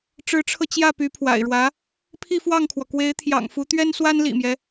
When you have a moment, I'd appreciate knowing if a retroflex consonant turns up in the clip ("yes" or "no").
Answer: yes